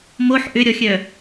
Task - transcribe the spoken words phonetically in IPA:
m o ħ ʔ ʏ ɾʲ ɔ xʲ œ

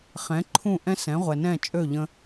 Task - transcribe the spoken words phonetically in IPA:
χ ɛ̃˩˥ ǃʰ ũ˥˩ ʔ ɛ̃˥ s ɛ̃˩˥ ʁʷ ɛ˩ n ɛ̃˥˩ t͡ʃʼ ø˥˩ ʎ ə̃˧

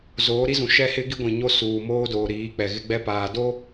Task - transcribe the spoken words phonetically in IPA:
z oː˨˦ ɾ i˦ z ũ˨ ʃ ɛ˦ h ɪ˦ ɡ i˦ ɡʷ ĩ˨ ɲ o˦ s uː˨ m oː˦ d oː˨ ɾ iː˨˦ k͡p ɛ˨ ɣ ɪ˦ ɡ͡b ɛ˦ p aː˨ d o˦

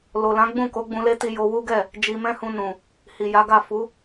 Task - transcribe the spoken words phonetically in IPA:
l o˨ l ã˨˦ ɡ͡b ũ˦˨ k o˨˦ ɡ͡b ũ˧ l e˦ t i˧ j o˧ w u˦ ɡ ɛ˦˨ | d͡ʒ i˧ m ɛ̃˦ h ũ˧ n ũ˨ | h i˨ j a˨˦ ɡ a˦˨ f u˨˦

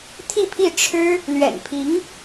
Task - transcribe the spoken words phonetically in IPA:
t̪ʰ i˥˧ pʰ i˥˩ ʈ͡ʂʰ ɻ̩˥ | l ɥ ɛ̰˨˩ n pʰ i˧˥ ŋ

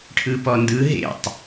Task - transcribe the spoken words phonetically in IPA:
ʈʰ ɯ p ɔ n d ɯ ɦ ḛ tˤ

